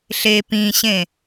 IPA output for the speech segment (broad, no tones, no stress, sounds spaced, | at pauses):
ɬ e p ĩ ɕ ẽ